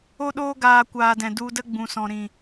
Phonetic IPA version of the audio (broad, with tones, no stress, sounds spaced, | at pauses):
o˧ ɗ oː˧ ɡ aː˨ kʷ aː˨ d ɛ̃˨ d u˧ d ə˦ ɡ͡b ũ˨ s ɔ̃˨ ɾ ĩ˨